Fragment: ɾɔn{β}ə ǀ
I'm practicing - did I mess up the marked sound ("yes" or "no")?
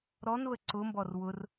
no